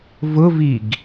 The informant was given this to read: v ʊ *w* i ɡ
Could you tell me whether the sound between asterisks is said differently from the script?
yes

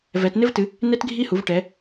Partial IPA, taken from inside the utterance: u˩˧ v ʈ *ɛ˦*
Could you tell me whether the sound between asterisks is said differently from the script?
yes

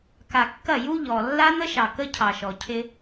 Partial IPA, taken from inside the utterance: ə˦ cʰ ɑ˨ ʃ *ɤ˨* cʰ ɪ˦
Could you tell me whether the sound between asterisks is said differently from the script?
yes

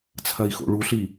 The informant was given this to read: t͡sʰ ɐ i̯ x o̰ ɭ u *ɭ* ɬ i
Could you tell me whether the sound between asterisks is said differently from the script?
yes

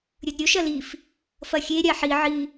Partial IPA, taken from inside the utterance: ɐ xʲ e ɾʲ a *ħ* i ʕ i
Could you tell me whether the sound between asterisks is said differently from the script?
no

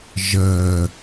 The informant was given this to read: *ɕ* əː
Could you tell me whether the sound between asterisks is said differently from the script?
yes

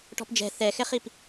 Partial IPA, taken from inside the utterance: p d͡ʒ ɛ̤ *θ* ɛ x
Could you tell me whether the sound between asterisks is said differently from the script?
no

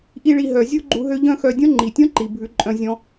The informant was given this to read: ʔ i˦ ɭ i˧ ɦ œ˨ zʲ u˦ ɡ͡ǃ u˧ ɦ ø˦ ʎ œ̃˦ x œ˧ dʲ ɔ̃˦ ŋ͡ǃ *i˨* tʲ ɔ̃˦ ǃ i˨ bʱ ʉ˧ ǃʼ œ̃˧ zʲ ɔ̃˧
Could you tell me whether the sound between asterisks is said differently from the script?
no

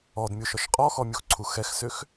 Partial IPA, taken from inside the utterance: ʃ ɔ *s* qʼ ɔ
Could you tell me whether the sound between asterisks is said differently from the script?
yes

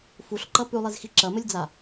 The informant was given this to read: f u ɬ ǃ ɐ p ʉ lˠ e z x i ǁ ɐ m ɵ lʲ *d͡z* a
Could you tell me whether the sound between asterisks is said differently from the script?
no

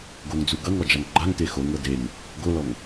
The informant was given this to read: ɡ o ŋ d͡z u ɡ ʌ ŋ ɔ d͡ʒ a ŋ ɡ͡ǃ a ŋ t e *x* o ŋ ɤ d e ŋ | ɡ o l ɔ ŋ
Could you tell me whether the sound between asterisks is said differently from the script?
no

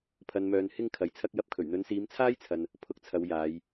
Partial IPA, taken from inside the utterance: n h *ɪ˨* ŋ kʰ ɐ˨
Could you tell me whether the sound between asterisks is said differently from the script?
yes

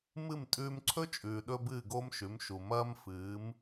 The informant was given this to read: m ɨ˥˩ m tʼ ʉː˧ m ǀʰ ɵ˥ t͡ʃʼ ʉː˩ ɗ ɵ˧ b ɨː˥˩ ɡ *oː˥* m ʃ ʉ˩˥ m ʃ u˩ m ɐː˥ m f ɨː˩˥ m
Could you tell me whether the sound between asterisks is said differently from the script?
no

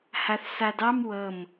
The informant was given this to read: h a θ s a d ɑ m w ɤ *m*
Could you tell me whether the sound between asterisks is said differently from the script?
no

